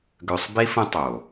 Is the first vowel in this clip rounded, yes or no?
yes